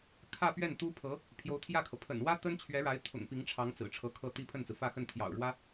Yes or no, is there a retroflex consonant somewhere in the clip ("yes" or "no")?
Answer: yes